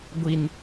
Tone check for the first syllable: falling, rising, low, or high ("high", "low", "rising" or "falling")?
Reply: high